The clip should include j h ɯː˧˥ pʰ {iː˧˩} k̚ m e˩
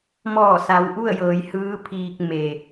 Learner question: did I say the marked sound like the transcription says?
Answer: no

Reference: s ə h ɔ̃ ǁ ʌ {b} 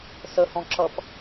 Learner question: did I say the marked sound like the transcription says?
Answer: no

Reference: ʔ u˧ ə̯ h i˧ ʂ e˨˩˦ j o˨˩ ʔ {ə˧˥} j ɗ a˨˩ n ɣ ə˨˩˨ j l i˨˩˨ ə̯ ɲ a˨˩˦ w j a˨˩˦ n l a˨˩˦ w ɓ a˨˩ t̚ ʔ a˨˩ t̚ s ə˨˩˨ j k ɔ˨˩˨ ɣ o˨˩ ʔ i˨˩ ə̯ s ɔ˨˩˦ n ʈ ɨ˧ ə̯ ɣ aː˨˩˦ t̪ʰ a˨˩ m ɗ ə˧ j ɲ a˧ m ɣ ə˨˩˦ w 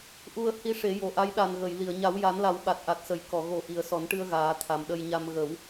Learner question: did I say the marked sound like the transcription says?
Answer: no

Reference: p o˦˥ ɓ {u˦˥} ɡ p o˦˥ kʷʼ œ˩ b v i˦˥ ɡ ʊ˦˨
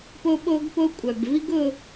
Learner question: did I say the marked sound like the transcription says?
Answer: no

